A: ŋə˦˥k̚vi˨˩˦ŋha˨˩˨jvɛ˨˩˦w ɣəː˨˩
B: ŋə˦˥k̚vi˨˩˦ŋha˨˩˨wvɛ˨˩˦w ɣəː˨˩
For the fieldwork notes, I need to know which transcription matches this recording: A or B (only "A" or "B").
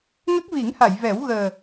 A